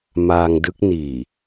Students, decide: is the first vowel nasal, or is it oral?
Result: oral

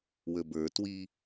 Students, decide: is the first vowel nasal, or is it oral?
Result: oral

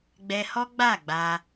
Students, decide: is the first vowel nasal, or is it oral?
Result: oral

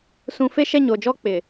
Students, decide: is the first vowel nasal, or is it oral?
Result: nasal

